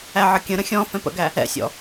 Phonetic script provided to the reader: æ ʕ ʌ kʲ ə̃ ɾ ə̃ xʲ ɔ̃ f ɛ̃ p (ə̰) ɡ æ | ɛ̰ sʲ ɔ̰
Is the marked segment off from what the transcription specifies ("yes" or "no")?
no